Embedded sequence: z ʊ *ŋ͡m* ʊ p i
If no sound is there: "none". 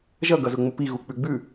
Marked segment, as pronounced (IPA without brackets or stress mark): ŋ͡m